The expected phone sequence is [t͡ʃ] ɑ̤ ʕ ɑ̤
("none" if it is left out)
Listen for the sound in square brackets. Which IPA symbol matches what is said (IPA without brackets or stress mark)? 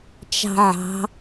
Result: t͡ʃ